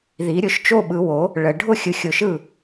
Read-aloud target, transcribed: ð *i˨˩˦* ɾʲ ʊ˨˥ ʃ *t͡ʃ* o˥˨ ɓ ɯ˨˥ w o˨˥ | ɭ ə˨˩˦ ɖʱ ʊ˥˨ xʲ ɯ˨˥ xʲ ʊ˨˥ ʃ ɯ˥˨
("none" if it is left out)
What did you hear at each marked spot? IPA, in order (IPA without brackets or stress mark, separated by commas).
i˨˥, t͡ʃ